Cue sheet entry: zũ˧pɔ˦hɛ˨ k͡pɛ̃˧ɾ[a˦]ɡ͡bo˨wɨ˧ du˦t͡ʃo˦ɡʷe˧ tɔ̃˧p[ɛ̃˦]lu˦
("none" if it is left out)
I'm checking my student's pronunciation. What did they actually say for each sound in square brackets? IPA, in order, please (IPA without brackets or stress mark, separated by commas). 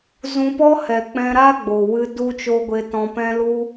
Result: a˦, ɛ̃˦